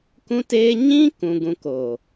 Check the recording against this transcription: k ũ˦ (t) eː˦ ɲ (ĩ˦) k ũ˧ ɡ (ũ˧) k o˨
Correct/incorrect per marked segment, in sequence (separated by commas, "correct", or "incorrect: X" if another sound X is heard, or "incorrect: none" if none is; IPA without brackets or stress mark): correct, correct, correct